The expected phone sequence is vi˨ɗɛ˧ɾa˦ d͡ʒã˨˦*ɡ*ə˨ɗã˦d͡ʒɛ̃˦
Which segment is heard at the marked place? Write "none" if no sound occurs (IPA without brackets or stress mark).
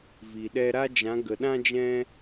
ɡ